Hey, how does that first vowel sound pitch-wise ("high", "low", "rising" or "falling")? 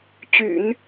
low